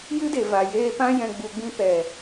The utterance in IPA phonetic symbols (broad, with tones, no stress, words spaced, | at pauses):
jɨ˦de˨ va˨jeː˧pã˦ jɛ̃˧ɡ͡bu˧ɡ͡bĩ˦ pɛ˨